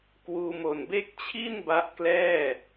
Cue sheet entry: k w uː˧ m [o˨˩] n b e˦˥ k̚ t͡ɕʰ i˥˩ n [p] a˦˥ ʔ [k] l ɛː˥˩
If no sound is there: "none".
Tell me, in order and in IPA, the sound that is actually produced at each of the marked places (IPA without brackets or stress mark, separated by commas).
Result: o˨˩, b, k